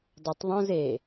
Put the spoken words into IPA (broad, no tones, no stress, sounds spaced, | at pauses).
dˤ ɛ tˤ ðˤ õ z e